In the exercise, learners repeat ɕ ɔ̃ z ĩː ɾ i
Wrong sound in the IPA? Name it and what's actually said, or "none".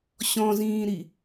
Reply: none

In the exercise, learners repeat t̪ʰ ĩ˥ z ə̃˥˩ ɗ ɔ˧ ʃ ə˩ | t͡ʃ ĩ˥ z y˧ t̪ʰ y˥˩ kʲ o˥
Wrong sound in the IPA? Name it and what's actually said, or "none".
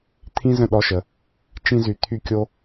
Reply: none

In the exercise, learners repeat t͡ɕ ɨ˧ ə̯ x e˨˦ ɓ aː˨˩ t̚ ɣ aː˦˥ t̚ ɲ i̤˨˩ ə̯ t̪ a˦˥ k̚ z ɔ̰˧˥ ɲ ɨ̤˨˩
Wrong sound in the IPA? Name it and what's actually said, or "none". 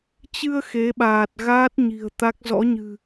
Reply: none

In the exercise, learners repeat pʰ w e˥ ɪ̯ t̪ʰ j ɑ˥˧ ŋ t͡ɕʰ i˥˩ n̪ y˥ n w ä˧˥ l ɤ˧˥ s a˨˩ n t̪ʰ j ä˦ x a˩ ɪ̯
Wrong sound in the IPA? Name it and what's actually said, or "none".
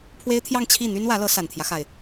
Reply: none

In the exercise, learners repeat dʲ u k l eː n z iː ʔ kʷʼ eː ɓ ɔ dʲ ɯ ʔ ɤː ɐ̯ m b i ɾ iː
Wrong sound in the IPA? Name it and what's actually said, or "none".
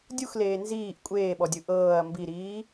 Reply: k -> x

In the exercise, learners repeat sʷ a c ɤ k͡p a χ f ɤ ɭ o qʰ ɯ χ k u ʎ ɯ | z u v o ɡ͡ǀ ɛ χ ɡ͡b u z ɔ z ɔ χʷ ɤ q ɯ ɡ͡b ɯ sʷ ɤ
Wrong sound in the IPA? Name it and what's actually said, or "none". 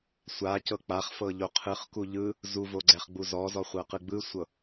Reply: ɭ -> ʎ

